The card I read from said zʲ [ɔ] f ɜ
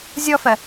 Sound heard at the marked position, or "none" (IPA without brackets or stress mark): ɔ